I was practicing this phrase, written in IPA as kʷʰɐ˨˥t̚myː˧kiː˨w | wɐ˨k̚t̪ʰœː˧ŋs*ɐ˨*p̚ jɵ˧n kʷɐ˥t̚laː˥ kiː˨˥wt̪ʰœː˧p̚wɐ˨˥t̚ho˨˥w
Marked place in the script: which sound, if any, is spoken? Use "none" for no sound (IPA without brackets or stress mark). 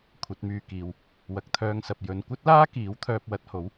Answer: ɐ˨